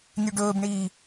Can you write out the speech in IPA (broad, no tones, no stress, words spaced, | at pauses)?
nʲʉɖɵːbɳiː